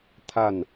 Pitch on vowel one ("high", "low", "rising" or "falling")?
falling